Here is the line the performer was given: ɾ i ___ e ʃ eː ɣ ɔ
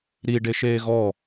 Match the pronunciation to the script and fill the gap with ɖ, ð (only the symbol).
ɖ